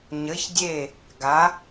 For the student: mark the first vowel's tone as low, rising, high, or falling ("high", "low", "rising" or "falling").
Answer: rising